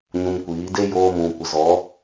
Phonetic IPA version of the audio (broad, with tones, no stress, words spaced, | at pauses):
ɲũ˧mkʷiː˨˦ de˦joː˧ mũ˨kʷə˨ zɔ˨˦